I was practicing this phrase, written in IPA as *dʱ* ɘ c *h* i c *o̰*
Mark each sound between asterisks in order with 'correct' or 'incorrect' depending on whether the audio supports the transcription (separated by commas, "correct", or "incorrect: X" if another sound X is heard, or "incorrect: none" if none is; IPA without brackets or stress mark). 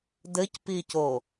incorrect: d, incorrect: p, incorrect: o